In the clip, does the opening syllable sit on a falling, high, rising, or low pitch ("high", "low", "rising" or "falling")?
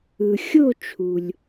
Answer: low